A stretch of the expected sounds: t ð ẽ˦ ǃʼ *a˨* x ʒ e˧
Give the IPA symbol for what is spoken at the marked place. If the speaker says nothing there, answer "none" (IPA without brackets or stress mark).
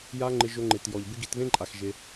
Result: a˨